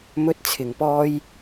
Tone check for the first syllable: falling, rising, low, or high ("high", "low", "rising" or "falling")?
high